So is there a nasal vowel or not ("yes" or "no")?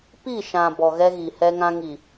yes